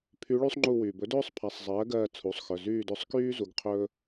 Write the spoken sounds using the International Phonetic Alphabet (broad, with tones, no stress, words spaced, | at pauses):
pʰy˧˥ɭy˥sˤŋ͡ǃu˦˨ wyː˩bɵ˩˥dɵː˥sˤpʰa˩˧˩sˤ zˤɜː˩˥ɡɜː˦˨ t͡sʰu˩˧˩sˤxœ˩˧˩ zyː˦˨dɵ˦˨sˤkyː˥ zu˩˥ɡ qʰɵː˥